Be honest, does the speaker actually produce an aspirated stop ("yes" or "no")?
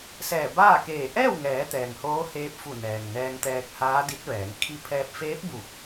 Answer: yes